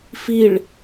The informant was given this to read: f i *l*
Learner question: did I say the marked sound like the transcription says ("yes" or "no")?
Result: no